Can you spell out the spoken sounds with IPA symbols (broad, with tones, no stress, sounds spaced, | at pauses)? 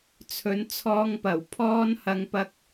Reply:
t͡sʰ ɵ˨˥ n t͡sʰ ɔː˧ ŋ p ɐ˨˩ w pʰ ɔː˧ n h ɐ˧ ŋ p ɐ˧ k̚